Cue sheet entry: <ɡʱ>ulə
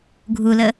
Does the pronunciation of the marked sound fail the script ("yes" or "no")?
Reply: no